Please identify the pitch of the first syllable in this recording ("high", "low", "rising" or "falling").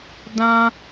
high